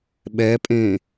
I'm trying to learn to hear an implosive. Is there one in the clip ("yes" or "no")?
yes